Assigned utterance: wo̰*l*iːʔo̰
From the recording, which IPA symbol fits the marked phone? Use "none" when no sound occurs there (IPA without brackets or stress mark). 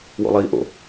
lˠ